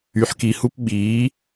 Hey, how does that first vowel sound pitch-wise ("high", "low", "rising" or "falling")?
low